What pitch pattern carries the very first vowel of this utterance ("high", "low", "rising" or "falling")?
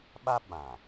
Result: high